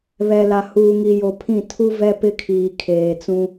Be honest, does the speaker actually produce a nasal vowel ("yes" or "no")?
yes